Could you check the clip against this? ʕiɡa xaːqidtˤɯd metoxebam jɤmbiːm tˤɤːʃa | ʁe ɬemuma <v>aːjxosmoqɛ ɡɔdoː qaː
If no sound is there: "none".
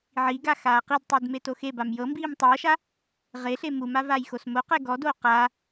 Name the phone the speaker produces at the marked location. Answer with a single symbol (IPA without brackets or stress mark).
v